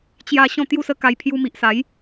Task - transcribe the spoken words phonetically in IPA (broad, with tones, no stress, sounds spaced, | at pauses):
t͡ɕ j a˦ ɕ ɔ̃˥˧ t̪ j u˥˧ s ə˦ k a˧ j pʰ j u˧ m i˨ ʔ s a˨˦ j